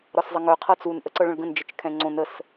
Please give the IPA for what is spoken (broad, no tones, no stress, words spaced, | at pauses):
ɾɒszˤəŋœ qʰɤt͡sun ʔəǀɤɭə̃ɭɡə̃n d͡ʒət͡ʃkʰɛ̃ŋ͡ǀõn əs